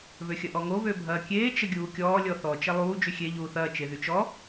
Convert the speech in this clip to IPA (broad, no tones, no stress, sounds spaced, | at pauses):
β ø xʲ ɐ ʔ ɔ ŋ o β ø bʱ ɐː kʲ eː t͡ʃ ə ɡʲ uː kʲ ɔː lʲ ɔ θ ɔ t͡ʃ ɐ lˠ uː d͡ʒ y xʲ e ʎ uː θ ɐː t͡ʃ e ð y t͡ʃ ɔ